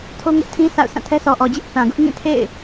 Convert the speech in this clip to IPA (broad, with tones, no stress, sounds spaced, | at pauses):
tʰ o˦ ŋ ʊ˦ ʔ tʰ ĩ˦ s a̰˦˨ ʊ̯ s ã˦˨ tʰ ɛ˦ s ɔ˨ ʔ ɔ˨ d͡ʑ ɪ˦ ʔ θ ã˨ ɡ ʊ˦ ʔ ŋ ĩ˦˨ tʰ ḛ˦˨ ɪ̯